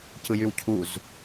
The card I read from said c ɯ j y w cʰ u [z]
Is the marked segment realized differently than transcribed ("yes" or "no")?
no